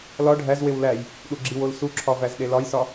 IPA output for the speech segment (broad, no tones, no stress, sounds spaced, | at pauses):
l ɒ ɖʱ æ z w e w l æ j | ɗ u ɡ͡ǁ i w o l s u ǁʰ ɒ v æ z ɗ e l ɒ j s ɒ